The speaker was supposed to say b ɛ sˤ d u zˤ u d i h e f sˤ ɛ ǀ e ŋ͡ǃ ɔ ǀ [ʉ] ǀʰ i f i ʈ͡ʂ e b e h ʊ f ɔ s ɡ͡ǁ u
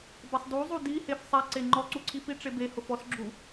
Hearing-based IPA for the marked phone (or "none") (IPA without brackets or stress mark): u